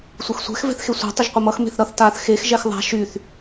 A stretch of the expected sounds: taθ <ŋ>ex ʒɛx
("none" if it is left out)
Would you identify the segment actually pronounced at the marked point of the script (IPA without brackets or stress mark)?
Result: x